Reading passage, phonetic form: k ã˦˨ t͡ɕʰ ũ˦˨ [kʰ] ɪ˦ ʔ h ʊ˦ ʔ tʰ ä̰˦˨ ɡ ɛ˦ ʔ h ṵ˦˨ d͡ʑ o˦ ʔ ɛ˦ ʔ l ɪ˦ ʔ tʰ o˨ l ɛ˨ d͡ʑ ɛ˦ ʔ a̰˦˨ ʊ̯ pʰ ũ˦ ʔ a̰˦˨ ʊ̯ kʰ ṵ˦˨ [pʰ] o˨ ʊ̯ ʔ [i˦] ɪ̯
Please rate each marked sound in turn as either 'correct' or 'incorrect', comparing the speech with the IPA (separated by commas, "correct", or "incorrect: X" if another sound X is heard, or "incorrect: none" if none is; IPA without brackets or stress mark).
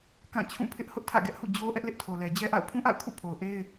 incorrect: pʰ, correct, incorrect: e˦